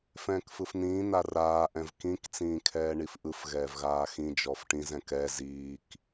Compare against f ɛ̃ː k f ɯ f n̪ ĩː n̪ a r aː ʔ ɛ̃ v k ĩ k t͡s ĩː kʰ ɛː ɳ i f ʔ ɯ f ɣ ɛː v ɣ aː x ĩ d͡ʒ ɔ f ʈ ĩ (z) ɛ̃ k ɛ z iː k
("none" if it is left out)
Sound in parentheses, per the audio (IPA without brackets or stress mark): z